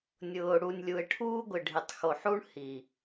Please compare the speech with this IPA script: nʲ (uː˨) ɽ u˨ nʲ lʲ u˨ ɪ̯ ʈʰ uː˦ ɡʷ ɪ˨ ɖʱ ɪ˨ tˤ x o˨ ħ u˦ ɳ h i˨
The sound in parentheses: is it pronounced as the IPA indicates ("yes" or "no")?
no